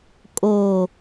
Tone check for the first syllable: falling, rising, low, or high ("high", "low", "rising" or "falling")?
low